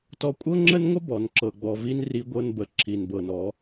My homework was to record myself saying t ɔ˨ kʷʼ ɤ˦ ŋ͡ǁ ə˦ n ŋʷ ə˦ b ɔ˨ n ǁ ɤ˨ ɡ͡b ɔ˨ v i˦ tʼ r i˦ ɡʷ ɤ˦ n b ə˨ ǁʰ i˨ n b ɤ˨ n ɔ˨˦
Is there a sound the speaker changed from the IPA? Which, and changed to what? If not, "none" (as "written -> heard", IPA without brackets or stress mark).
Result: tʼ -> n